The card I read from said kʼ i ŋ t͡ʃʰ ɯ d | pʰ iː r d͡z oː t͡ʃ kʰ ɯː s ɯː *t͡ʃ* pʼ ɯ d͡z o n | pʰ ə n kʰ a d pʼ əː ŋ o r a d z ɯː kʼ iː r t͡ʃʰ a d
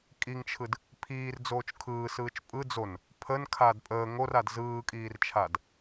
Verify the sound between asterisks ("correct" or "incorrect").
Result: correct